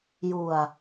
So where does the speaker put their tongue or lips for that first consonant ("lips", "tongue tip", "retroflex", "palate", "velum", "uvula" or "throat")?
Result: palate